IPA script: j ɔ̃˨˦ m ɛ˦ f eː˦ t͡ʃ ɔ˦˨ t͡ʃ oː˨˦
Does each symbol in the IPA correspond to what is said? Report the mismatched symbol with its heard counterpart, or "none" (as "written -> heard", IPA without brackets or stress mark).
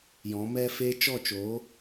none